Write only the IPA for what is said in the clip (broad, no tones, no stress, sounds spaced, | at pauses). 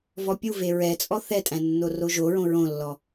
v ɔ pʲ u v e ɹ ɛ t͡sʼ ɔ θ ɛ tʼ æ̃ nː o r o ʒ o ɹ õ ɹ õ lː ɔ